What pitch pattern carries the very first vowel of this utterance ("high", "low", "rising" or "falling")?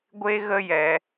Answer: high